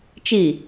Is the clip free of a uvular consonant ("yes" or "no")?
yes